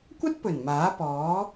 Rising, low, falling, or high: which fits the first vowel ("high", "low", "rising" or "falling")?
high